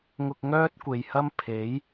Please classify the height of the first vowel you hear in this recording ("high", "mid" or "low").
high